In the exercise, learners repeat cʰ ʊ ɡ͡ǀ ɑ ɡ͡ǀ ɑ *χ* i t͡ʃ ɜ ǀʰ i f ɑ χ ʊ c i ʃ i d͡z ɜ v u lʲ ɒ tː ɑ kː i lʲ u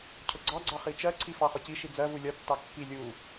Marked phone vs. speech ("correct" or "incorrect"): correct